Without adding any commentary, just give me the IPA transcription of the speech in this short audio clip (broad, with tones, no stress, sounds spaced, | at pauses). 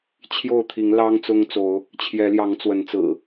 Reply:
t͡ɕʰ j o˥˨ ʊ̯ t̪ʰ i˨˦ ŋ l ɑ˦ ŋ t͡s ʊ˦ ŋ t͡s o˨˦ ʊ̯ | t͡ɕʰ j ɛ˨˦ l j ɑ˨˦ ŋ t͡s w ə˨˦ n t͡s ɹ̩˨˩